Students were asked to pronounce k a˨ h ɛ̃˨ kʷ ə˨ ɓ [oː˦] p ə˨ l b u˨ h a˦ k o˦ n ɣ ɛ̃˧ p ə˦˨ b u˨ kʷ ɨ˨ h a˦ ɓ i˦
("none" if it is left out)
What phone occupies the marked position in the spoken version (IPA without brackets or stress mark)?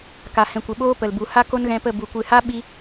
oː˦